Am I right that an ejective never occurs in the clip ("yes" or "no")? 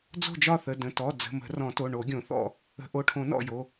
yes